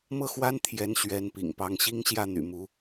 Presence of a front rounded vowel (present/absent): present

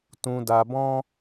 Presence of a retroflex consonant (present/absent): absent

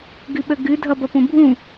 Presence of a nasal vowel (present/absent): present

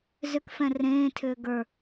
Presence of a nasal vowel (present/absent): present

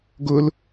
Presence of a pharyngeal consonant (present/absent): absent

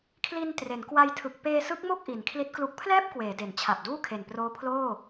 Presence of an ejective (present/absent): absent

